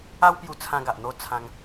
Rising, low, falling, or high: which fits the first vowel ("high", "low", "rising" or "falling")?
high